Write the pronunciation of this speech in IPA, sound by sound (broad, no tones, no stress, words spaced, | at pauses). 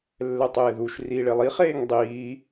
lːɛtˤeːðuʃ riːɭelˠi χeːŋdˤiː